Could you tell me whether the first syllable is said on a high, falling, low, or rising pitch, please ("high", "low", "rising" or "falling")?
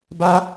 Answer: high